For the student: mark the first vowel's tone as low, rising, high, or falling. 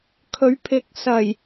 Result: rising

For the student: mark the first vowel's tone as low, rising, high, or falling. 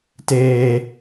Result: high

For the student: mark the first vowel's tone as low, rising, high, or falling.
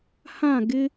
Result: falling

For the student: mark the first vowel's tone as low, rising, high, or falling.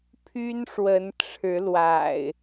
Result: high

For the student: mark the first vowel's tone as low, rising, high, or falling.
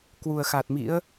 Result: low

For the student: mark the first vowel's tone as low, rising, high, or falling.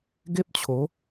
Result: high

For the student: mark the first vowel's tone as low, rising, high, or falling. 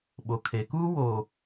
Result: low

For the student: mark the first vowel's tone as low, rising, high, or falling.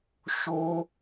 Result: high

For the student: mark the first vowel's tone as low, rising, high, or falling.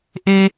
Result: high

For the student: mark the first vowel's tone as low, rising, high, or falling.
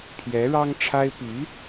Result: rising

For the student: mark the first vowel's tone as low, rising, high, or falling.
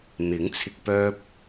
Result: rising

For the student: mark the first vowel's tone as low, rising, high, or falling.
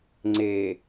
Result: low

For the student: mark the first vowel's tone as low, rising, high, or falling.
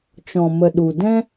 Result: low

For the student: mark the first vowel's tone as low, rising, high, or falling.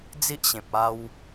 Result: high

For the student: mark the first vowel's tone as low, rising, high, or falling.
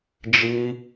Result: high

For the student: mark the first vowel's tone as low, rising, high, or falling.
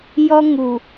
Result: high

